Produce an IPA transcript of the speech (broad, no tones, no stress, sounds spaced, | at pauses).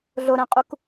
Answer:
ɮ o ɾ æ̃ qʼ u k